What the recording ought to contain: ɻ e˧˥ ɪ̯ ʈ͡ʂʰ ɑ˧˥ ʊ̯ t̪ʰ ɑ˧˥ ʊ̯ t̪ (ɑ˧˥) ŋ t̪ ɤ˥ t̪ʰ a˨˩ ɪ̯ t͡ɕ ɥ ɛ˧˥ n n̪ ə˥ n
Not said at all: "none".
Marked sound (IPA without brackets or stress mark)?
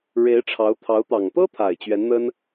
ɑ˨˩